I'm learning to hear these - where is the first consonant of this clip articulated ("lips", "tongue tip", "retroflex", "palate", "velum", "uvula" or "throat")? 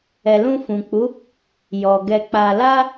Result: tongue tip